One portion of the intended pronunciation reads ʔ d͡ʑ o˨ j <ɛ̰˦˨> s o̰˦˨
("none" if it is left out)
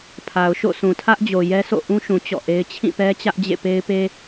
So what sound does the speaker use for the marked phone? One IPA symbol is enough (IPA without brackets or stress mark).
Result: ɛ˦